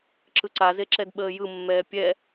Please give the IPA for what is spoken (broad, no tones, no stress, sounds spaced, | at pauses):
ǁ ɯ ǀ a z e ǁ ɛ d ɓ əː j ɯ mː ɛː pʲ ɛ